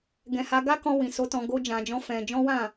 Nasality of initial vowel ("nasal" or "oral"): nasal